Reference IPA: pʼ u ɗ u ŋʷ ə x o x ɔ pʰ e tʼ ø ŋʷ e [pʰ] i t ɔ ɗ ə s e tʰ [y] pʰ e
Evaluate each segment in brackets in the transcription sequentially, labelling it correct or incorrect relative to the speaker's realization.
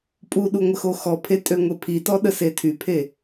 correct, correct

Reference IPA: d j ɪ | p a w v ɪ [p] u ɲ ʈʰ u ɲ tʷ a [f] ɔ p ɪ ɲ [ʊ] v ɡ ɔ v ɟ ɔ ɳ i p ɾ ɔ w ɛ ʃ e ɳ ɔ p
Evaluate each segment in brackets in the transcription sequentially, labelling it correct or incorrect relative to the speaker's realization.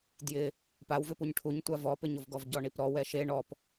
correct, incorrect: v, correct

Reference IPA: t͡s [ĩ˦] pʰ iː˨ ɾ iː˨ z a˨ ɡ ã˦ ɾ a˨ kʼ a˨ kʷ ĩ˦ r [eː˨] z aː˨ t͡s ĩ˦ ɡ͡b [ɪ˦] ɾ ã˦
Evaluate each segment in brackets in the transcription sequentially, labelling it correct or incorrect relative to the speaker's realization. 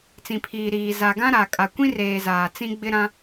incorrect: ĩ˨, correct, correct

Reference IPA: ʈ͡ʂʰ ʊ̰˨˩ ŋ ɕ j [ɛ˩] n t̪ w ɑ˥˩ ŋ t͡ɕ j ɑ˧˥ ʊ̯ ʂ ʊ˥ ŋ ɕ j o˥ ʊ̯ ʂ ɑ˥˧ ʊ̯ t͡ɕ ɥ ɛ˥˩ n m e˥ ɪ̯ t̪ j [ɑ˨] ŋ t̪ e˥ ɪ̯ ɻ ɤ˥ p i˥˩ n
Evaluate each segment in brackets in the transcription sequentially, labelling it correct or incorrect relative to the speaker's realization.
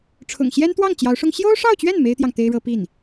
incorrect: ɛ˥, correct

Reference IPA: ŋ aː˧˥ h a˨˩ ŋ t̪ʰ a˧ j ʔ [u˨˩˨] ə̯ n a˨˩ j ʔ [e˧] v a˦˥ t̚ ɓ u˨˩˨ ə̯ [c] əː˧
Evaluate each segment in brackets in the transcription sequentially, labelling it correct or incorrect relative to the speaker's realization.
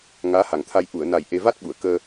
correct, correct, incorrect: k

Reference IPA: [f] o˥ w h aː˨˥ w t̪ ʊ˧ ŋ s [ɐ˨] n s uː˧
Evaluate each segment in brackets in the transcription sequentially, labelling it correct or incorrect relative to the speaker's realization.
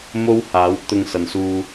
incorrect: m, correct

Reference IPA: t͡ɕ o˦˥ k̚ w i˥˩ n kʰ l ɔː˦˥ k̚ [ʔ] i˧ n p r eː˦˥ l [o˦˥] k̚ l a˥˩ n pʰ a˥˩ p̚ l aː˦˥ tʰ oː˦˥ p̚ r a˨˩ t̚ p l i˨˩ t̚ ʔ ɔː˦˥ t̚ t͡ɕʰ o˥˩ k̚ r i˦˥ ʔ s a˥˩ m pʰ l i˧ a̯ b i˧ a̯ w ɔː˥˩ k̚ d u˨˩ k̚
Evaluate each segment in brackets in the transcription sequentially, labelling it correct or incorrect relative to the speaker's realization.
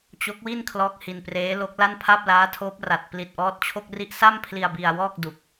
incorrect: h, correct

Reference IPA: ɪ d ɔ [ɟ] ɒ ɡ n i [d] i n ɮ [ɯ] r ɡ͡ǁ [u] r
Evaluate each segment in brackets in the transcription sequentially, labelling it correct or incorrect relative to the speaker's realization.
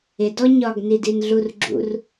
incorrect: ɲ, correct, incorrect: u, incorrect: ṵ

